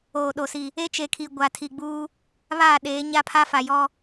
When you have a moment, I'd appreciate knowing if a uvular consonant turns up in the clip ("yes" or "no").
no